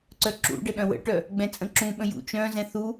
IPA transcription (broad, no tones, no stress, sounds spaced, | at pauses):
ǀ œ ǁ ṵ ɖ ə ɗ œ̃ w ə̰ ʈ œ | ɡ͡b ɛ̃ t͡sʼ ə̃ ǁ ũ ɓ ə̃ j ṵ t͡ʃ œ̃ z ɛ̃ θ u